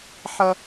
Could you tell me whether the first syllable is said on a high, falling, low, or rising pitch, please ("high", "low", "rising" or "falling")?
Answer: low